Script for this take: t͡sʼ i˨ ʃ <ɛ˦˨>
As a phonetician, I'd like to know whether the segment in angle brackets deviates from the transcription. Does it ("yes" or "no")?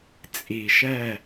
no